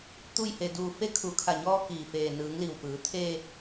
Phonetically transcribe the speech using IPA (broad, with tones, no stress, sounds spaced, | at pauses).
t̪ u˥˨ j h e˧ d uː˧ f e˧˥ kʰ u˩˧ kʰ a˧˩ ɲ ɔː˧ k iː˩ f eː˩ n ɯː˩˧ ŋ l i˩ w p ɯː˩˧ t̪ʰ e˧